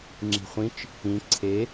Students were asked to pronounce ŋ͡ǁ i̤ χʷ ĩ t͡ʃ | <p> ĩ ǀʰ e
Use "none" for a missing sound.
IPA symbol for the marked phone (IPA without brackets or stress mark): p